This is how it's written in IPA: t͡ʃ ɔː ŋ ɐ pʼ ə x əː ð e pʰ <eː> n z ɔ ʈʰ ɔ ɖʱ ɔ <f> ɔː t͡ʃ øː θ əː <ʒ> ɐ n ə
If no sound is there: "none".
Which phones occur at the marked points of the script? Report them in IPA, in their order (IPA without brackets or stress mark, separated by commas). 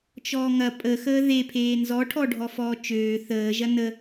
eː, f, ʒ